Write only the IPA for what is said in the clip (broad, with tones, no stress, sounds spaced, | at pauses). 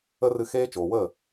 ə˦ r ɨ˧ x eː˦ t͡ʃ oː˨ w əː˦˨